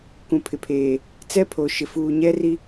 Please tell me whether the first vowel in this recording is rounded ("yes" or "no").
yes